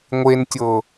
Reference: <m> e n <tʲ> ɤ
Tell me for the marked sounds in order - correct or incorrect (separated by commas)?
incorrect, correct